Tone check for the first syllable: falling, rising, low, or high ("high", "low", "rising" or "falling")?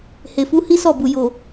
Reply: low